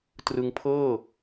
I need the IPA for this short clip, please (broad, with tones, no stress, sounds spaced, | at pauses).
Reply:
t r ɯ˧ ŋ pʰ ɤː˥˩